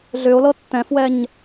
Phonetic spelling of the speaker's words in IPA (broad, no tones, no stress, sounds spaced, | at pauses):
ɮ ʏ o̯ l ɤ tː ɛ̃ f w ɛ ɲ